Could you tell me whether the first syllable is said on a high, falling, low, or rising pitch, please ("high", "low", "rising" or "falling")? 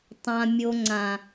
low